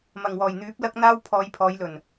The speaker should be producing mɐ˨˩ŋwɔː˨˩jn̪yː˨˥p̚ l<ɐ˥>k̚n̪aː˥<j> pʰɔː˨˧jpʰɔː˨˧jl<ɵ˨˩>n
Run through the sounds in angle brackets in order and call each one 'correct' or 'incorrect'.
correct, incorrect, correct

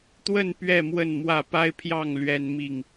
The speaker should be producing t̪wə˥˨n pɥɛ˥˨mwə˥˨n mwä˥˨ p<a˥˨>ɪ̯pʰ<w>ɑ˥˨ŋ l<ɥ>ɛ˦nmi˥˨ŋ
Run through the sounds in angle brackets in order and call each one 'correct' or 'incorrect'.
incorrect, incorrect, correct

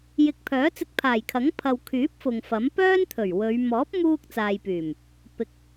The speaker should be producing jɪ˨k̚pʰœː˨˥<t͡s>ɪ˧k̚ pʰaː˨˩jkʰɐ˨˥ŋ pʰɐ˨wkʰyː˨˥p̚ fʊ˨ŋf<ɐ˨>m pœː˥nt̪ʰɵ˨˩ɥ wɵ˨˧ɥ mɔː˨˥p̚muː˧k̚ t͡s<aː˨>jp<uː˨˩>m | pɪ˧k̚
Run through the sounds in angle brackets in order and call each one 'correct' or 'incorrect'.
correct, incorrect, correct, incorrect

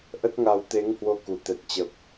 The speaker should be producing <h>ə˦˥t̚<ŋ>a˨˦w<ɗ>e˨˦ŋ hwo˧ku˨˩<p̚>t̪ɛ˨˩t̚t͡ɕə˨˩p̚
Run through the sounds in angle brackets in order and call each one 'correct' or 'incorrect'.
incorrect, correct, incorrect, incorrect

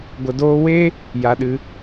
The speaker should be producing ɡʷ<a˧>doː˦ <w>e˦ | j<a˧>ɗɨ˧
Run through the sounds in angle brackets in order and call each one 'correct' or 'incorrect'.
incorrect, correct, correct

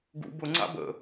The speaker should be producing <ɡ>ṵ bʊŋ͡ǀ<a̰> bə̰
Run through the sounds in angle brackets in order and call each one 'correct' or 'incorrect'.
correct, correct

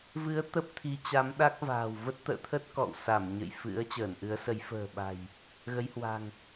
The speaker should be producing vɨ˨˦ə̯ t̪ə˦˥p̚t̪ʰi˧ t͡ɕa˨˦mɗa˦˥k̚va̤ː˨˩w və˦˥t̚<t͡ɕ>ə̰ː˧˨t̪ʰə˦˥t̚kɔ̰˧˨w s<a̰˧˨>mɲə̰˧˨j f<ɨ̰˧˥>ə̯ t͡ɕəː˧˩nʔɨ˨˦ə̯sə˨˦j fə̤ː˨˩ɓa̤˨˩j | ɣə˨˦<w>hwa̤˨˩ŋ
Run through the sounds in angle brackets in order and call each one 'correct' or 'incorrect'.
incorrect, incorrect, correct, incorrect

